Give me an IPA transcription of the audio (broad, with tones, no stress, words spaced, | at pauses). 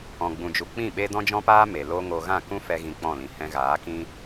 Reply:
ɔ̃˧ɡ͡bũ˧d͡ʒu˧ k͡pĩ˦˨ɓe˦ dɔ̃˦d͡ʒɔ̃˦paː˦ me˨ lo˦ŋo˧ ɣã˦˨kũ˦fɛ˧ ɣĩ˧k͡pɔ̃˦˨lĩ˨ hɛ̃˧ɣaː˨˦kĩ˦